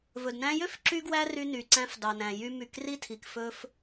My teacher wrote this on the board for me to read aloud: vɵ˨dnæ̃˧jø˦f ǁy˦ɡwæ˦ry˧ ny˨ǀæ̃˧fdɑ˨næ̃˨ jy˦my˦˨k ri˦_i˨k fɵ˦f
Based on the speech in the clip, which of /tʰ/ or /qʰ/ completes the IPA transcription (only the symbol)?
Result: tʰ